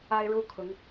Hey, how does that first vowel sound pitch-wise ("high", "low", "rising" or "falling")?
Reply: high